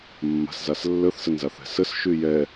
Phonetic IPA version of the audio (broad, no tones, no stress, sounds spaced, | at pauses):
mː a̤ s z a s lː ə θ s ə n z a θ ɛ̤ s ə s ʃ y j ɛ